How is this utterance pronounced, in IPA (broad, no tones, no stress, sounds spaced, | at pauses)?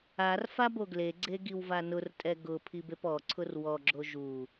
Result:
a r f a b o ɡ l e ɡ͡ǀ e ɡ i w v a n ʊ r tʼ ɛ ɡ ʊ pʰ i b e p ɔ ǀʰ ʊ r w ɔ ɡ͡ǁ o ʒ u